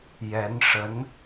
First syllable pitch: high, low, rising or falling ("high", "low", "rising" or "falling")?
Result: rising